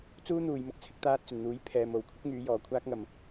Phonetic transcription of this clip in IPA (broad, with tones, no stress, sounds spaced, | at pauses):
t͡s uː˥ n̪ uː˨ j m ʊ˧ k̚ t͡sʰ ɪ˨˥ k̚ t̪ aː˧ t̚ t͡s ɵ˨˩ n n̪ uː˨˥ j pʰ ɛː˨ m o˨ w kʷʰ ɪ˥ k̚ ŋ yː˨˧ j ɔː˨˩ kʷʰ aː˥ k̚ ŋ ɐ˨ m